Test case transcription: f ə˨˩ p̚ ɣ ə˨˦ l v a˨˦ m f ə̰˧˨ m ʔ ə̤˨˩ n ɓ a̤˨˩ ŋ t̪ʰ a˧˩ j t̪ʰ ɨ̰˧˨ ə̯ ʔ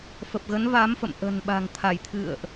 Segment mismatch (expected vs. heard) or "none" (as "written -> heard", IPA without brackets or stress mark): l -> n